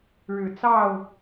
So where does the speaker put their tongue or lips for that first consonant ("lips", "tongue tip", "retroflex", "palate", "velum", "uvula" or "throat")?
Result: retroflex